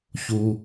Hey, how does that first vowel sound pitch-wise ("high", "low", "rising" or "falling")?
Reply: low